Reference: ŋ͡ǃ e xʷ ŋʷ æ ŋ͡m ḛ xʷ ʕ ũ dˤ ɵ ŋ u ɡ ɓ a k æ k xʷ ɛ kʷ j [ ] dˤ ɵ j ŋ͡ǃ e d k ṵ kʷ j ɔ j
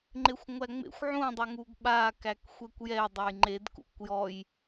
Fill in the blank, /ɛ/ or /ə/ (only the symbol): ɛ